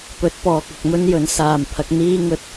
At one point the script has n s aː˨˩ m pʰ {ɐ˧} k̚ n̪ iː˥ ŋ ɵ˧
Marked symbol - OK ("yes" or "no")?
no